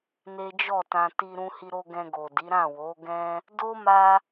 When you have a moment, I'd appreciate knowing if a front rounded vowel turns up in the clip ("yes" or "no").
no